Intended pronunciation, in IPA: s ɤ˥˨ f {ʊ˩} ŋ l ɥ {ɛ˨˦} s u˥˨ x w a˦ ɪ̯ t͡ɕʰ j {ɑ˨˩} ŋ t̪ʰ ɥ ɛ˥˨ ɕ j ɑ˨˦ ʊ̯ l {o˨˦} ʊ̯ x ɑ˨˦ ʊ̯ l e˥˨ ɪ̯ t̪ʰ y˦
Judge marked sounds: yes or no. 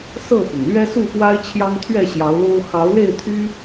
yes, no, no, no

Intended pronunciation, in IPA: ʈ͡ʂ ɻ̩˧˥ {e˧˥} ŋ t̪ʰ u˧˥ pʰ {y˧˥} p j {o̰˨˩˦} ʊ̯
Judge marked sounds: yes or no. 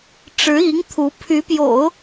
no, yes, yes

